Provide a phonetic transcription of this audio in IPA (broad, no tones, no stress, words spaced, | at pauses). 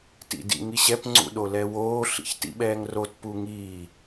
tḭdḭŋiɕɛp ŋ͡ǀṵɗolɛwoː ɬḭçtḭɓɛːŋrot puŋiː